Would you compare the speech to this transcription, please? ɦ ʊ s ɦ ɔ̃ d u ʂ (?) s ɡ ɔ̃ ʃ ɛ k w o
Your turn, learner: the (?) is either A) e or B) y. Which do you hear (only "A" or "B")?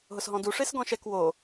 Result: A